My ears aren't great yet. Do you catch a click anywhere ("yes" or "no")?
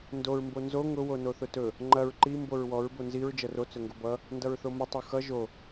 yes